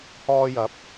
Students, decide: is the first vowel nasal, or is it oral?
oral